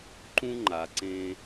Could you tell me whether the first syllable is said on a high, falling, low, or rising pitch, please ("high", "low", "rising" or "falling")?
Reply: high